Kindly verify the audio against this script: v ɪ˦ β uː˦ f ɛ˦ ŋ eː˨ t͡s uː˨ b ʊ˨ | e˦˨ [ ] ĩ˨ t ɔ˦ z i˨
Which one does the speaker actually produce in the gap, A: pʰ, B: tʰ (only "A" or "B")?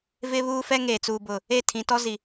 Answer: B